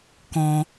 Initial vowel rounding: rounded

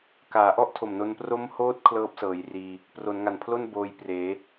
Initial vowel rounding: unrounded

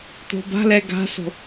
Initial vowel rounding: rounded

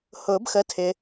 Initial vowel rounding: rounded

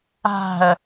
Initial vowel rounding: unrounded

